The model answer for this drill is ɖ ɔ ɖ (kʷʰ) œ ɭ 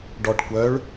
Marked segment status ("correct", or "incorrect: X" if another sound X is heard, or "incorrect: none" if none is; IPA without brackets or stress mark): incorrect: kʷ